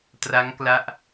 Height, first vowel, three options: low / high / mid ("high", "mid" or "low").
low